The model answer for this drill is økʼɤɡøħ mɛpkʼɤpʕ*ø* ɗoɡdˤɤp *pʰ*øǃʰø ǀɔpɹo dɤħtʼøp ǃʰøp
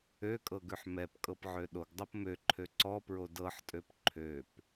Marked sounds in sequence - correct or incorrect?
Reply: correct, incorrect

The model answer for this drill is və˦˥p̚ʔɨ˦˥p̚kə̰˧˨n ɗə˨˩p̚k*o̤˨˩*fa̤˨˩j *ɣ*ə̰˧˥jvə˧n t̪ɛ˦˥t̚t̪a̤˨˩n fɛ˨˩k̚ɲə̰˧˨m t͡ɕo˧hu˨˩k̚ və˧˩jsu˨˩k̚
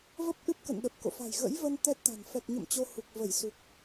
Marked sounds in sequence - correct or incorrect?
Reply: incorrect, correct

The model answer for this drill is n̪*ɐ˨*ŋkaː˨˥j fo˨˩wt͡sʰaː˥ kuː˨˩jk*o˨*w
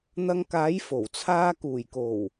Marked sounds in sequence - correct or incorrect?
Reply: incorrect, incorrect

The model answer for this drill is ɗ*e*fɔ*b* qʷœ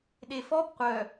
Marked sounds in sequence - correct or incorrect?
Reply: correct, correct

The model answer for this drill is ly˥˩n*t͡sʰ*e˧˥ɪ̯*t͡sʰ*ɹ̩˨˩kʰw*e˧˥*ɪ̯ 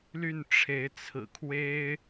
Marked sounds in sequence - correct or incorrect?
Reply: incorrect, correct, incorrect

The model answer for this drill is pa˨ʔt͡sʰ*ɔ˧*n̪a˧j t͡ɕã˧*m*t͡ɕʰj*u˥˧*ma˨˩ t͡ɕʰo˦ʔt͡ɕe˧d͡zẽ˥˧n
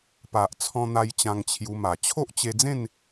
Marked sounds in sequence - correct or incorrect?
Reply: incorrect, incorrect, incorrect

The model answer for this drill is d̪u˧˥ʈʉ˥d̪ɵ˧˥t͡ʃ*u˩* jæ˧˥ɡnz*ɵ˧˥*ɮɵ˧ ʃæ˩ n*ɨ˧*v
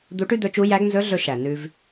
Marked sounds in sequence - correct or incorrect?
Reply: incorrect, correct, incorrect

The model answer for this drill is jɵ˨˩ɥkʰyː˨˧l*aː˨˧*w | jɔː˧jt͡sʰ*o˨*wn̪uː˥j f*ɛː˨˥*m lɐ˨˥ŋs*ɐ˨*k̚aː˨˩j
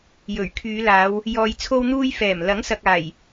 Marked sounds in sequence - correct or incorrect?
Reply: correct, incorrect, incorrect, correct

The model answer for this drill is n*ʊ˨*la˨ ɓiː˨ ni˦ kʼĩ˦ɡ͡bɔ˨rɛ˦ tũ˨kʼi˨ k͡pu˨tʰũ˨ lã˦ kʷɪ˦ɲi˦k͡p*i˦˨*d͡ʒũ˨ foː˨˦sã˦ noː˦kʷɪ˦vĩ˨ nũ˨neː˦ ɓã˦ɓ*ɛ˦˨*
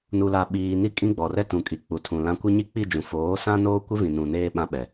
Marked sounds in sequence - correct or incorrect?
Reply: incorrect, correct, incorrect

